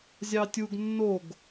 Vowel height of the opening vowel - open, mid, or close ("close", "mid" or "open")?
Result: open